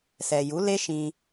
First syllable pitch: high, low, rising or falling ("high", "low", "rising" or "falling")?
low